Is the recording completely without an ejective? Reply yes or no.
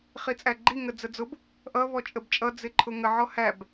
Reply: no